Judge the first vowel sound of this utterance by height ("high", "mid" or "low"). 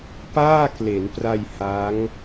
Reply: low